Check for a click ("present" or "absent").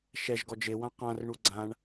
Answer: present